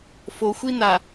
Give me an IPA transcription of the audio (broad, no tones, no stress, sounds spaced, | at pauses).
f o xʷ i n a